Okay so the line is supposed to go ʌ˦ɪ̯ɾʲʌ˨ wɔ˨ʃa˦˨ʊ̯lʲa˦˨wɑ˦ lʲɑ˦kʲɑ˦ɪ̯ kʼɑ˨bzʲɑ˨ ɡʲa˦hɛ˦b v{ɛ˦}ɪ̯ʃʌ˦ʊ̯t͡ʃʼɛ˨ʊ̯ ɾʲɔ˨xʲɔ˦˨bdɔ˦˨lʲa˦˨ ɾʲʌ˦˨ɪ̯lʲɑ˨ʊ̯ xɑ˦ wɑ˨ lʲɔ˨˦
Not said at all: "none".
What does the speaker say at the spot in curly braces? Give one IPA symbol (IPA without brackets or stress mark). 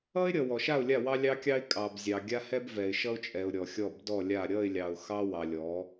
ɛ˨